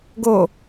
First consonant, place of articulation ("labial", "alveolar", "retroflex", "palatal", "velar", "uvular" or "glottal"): velar